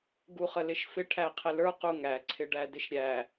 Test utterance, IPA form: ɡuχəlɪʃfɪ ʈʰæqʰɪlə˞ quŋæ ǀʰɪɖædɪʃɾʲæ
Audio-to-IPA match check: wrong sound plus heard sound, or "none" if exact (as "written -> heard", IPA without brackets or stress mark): none